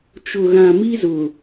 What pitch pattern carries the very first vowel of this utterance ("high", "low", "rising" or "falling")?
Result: low